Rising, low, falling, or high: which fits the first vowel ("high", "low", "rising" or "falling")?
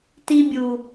high